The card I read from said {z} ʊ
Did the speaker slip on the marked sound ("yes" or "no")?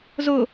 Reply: no